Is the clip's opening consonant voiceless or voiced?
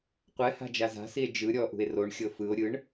voiceless